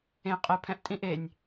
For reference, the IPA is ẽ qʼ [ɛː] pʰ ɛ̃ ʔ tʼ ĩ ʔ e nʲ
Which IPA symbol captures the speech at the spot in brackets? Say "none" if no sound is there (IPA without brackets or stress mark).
ɛ